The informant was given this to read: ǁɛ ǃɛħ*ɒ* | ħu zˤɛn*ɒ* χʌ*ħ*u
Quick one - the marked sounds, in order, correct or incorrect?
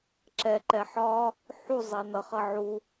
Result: correct, incorrect: ʌ, incorrect: ʕ

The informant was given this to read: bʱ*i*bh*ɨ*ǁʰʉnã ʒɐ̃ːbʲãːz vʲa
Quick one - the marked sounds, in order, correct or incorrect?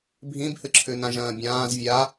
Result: incorrect: ĩ, correct

